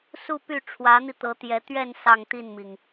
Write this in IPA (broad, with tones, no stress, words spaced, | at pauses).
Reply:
su˥˧py˥˩ʈ͡ʂʰwä˧˥n̪i˧ t̪ɤ˧˥t̪jɛ˧˥ t̪ɥɛ˥˧n sɑ˥˧ŋt̪i˥˩nmi˩ŋ